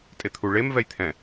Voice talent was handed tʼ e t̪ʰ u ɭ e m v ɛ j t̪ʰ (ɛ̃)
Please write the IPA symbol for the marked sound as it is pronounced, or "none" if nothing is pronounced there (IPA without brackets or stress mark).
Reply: ɛ̃